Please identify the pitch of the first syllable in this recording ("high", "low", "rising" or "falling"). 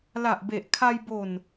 low